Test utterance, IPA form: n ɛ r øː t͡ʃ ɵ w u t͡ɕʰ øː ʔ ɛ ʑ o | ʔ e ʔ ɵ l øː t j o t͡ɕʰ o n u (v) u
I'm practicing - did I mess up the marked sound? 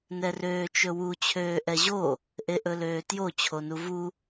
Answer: no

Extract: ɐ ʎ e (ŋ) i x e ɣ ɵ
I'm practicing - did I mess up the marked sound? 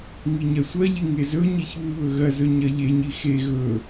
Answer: yes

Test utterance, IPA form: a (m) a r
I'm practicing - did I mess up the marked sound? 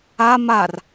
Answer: no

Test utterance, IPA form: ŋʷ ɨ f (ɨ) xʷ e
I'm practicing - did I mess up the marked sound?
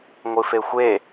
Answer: yes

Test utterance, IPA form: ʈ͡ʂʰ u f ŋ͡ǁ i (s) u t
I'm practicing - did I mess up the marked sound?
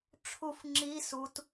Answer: no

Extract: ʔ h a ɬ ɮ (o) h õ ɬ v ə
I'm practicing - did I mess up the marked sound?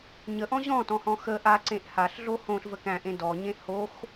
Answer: no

